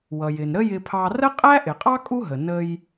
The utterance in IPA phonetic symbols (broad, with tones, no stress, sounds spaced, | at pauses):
w ʌ˩ j ɪ˩ n ɾ ə˥ j ɪ˧ pʰ ɑ˧ r ə˥ qʼ æ˥ ʔ ɪ˩ qʼ ɑ˥ kʼ u˥ ɦ ə˩ n ə˧ j